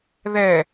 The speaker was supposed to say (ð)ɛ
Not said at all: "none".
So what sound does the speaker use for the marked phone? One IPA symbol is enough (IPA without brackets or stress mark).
ð